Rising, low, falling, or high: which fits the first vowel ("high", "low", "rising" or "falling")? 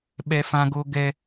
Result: high